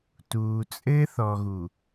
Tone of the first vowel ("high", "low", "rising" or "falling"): low